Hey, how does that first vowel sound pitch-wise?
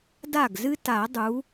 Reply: falling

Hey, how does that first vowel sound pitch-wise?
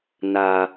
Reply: low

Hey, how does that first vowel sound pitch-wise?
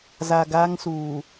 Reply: low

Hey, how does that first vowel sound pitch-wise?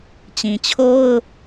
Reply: low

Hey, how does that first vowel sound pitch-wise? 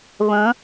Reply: rising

